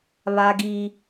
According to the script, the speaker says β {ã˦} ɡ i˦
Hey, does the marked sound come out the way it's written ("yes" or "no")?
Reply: no